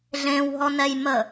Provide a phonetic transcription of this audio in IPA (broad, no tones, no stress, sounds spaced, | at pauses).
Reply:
ɮ ẽ w ɦ ɔ n ɛ j m ə